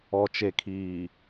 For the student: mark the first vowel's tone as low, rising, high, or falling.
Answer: low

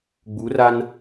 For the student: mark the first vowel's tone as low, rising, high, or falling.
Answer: rising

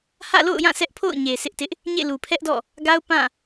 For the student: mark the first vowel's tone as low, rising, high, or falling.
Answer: falling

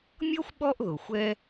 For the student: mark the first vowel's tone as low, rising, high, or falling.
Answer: high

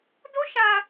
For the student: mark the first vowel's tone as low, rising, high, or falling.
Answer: high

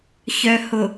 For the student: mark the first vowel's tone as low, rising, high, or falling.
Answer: low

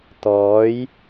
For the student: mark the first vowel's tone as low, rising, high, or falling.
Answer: rising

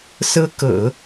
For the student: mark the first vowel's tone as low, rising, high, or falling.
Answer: high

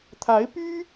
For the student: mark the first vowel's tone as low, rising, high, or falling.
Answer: rising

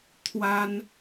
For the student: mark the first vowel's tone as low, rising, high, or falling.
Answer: high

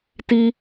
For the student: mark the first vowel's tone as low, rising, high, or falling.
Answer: high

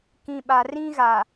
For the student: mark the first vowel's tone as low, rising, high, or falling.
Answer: low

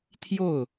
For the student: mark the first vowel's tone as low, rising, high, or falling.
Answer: falling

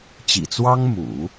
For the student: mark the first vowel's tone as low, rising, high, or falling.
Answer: low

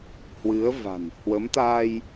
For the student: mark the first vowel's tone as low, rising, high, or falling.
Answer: rising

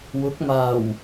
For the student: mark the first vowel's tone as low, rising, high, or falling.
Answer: rising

